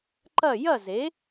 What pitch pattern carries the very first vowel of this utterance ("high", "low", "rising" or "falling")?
falling